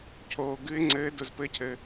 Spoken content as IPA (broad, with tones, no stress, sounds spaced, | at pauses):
cʰ oː˩ ɡ ɨ˨˥ ɪ̯ ŋ͡ǀ ɘː˨˥ d ʊ˩ z p ɘ˨˥ cʰ ɘ˩